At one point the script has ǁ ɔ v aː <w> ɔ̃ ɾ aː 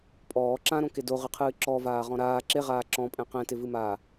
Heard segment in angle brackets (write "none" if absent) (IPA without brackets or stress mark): ʁ